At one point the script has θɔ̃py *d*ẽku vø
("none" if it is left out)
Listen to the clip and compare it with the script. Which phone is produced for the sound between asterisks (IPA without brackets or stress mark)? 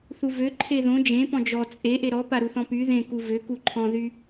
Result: ð